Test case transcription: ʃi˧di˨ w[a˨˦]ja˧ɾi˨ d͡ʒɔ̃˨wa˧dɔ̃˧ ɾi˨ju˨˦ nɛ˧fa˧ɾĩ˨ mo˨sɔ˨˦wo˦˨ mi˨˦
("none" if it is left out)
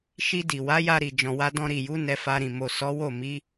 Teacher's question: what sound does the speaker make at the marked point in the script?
a˨˦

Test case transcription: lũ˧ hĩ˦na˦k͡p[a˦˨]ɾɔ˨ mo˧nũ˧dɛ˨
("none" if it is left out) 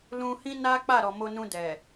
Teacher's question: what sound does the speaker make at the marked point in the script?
a˦˨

